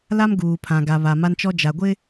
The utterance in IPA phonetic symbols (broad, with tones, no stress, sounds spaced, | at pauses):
l a˦ m ɡ uː˨ pʰ ã˨ ɡ a˨ β a˨ m a˦ n t͡ʃ ɔ˦ d͡ʒ a˨ ɡʷ ɪ˦